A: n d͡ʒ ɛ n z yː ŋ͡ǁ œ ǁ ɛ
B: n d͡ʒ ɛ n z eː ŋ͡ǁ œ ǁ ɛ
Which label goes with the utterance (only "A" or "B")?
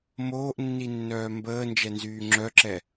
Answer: A